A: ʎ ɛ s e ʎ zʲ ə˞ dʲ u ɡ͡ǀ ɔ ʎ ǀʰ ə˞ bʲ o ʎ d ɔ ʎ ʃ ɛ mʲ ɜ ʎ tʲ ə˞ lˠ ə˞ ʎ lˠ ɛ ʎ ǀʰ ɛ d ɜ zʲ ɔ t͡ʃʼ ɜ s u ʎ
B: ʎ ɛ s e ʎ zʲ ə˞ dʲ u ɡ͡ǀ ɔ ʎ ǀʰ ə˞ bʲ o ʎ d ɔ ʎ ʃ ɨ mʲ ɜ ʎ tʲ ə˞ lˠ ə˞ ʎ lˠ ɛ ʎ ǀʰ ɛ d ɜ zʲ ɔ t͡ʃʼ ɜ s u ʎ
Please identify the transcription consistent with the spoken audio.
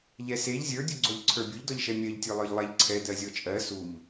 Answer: A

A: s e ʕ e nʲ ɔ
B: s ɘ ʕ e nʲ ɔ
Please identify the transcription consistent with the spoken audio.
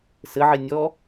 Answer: B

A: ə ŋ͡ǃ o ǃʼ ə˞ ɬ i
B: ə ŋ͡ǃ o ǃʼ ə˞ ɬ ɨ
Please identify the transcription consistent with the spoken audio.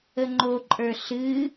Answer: B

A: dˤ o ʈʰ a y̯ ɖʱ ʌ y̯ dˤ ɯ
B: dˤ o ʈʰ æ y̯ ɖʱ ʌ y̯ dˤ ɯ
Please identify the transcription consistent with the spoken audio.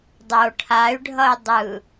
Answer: A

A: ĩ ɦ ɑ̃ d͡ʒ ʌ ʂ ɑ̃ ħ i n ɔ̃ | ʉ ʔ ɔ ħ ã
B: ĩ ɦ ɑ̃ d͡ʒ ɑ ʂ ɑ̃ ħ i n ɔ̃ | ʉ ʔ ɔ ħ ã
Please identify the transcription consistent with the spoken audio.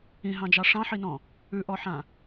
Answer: B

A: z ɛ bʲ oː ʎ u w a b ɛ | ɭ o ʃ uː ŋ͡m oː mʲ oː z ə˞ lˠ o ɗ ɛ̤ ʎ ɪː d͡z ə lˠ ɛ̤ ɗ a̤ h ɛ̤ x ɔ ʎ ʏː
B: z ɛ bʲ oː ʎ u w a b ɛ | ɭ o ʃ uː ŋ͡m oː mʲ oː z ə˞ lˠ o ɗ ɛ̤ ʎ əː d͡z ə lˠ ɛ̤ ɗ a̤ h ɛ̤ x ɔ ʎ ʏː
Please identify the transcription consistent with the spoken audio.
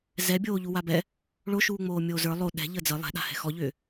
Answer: B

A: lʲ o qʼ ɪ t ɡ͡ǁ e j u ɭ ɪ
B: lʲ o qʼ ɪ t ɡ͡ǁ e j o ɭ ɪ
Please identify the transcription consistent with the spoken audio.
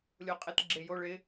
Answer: B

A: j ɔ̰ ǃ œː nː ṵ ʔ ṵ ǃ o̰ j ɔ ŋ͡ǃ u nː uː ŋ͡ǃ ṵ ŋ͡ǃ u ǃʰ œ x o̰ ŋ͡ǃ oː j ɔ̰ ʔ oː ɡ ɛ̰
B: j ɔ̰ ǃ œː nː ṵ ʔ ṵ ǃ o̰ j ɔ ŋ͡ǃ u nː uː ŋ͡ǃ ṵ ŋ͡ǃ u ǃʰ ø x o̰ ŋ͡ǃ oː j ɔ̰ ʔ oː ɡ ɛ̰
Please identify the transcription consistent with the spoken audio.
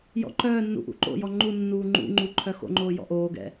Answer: A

